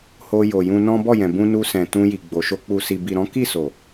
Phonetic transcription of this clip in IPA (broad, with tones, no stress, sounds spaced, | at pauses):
h o˧ j o˨ j ũ˧ n ɔ̃˦ b ɔ˦˨ j ɛ̃˨ b ũ˧ n u˧ s ɛ̃˨ t ũ˧ j i˨ ɡ͡b o˨ ʃ o˧ k͡p u˨ s i˨ b i˨ ɾ ɔ̃˨˦ k i˦˨ s o˨